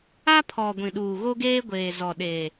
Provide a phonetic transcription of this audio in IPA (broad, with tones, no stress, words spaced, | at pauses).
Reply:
a˦pʰɔ˨ ɡʷĩ˨ɗuː˨ɣo˦ɡeː˦ ɡʷeː˨ zɔ˨ɗeː˨